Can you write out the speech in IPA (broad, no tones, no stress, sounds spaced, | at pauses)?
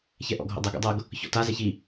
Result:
ç ɛ ʔ ɔ̰ ɡʱ o̰ dˤ ɛ ɡ o̰ dˤ ɤ ɡ | ç ɔ̰ t a z ɛ ç i